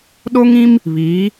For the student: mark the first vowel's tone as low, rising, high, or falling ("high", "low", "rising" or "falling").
high